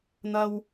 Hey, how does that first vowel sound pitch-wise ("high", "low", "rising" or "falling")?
low